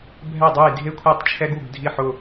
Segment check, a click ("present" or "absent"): absent